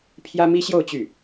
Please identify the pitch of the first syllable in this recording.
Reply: high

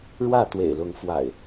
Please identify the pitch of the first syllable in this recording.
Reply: falling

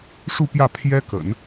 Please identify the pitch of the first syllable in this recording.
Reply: falling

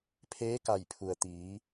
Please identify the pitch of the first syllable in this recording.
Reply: rising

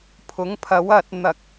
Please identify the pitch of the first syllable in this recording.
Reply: rising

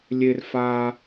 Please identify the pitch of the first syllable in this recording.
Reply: low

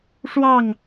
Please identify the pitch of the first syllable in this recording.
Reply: falling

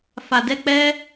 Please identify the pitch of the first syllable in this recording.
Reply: low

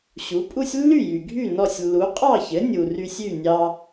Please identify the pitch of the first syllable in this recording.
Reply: rising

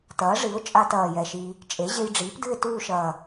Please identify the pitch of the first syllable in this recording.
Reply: rising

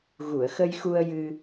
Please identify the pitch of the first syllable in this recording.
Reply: low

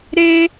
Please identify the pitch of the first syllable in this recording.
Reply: high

